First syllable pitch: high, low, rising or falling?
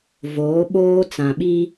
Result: rising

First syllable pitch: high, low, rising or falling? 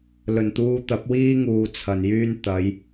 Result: low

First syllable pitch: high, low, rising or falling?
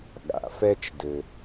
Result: low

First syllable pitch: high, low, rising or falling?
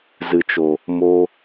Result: low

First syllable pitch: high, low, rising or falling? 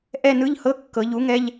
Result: falling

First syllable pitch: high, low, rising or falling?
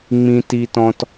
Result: high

